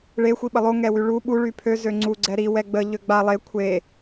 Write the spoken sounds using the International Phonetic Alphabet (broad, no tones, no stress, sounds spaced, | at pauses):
ɭ e xʷ i ɓ ə lˠ o ŋ ɛ w y ɭ u ɓ u ɭ y pʰ ø z ø ŋ͡ǀ u ɡ͡ǀ ɛ ɾ i w ɛ ɡ͡b ə ʎ ø ɡ͡b a lˠ e kʷʰ e